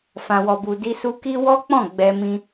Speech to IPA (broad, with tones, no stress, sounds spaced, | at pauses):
f ã˨ w ɔ˨ b u˨ d i˧ s u˧ k i˦ w ɔ˦ k͡p ɔ̃˦˨ ɡ͡b ɛ˧ m ĩ˧